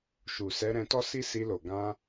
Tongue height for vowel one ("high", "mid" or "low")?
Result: high